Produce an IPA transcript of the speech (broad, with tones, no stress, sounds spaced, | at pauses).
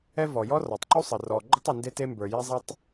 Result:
ɛ˥ v ɔ˩ j ɔ˥ r ɔ˩ tˤ ǃ u˥ sˤ ə˩ r ɔ˩ ɡ͡ǃ ə˥ tˤ u˩ n d e˥ t e˥ m b ə˞˩ j e˥ zˤ a˥ tˤ